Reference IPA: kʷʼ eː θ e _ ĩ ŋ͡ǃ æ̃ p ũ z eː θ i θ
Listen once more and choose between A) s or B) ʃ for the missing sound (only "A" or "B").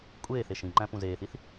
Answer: B